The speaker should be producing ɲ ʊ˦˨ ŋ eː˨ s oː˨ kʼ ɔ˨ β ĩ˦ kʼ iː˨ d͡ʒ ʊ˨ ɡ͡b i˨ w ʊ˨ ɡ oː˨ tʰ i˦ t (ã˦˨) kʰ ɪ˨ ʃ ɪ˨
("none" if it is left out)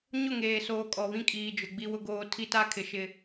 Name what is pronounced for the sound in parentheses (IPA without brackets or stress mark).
a˦˨